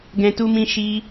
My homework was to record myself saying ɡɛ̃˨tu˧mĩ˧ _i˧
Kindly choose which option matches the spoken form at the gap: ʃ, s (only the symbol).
ʃ